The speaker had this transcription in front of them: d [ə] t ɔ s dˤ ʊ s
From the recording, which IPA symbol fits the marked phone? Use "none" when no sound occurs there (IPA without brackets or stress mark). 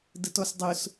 ə